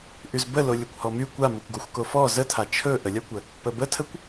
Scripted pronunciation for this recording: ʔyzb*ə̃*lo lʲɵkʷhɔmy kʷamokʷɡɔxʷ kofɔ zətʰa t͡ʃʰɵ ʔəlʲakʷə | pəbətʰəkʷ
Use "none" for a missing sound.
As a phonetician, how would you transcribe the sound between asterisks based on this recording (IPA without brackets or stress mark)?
ə